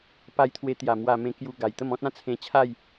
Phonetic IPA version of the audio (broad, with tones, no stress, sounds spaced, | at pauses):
p a˧ j t̪ʰ w e˧ t̪ j a˨˩ m w a˨˩ m ẽ˧ k j u˧ ɡ a˨˩ j t̪ ə˥˧ m ɔ̃˦ t̚ ã˥˧ t͡sʰ ẽ˧ t͡ɕʰ a˥˧ j